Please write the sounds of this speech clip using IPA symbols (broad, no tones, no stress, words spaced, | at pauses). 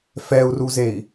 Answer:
fɛu̯ruzei̯